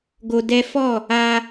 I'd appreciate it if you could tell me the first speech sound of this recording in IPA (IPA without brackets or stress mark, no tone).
ɡ